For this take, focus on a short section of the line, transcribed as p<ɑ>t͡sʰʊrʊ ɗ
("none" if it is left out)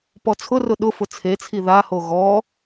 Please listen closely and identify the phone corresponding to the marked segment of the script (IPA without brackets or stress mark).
ɔ